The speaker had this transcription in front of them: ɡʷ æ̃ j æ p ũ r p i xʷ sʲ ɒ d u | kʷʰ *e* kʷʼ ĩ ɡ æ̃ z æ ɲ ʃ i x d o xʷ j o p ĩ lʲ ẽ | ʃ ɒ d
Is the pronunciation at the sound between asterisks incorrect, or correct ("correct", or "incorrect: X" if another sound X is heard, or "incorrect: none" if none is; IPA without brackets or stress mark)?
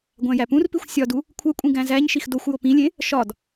correct